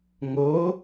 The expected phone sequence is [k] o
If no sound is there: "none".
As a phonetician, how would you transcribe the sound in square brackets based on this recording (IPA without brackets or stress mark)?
ŋ